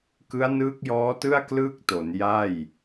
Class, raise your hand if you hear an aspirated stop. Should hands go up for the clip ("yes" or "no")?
no